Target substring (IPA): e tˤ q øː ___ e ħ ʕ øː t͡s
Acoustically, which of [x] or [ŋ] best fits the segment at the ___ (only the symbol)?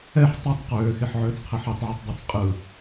x